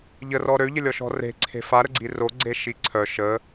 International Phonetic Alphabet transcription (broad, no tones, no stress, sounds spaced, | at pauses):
ʎ ə r ɔ ɾ ø ʎ ə lʲ ɔ ʃ ɔ̤ r e̤ ǀʰ e̤ f a ɾ ə ɡ͡ǀ i r o ɡ͡ǀ e ʃ i ǀʰ œ ʃ ə